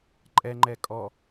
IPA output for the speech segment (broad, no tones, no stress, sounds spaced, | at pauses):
ǃʼ ɛ ŋ͡ǃ ɛ kʼ ɔ